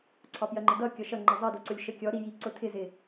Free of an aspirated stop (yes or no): no